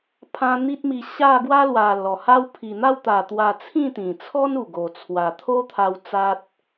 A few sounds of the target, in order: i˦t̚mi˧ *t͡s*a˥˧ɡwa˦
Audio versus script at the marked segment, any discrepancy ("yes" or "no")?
yes